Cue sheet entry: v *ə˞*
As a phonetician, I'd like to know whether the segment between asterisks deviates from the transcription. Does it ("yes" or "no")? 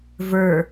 no